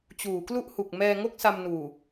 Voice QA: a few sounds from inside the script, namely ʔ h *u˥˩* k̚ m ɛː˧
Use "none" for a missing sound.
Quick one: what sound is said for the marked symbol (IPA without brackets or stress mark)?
u˨˩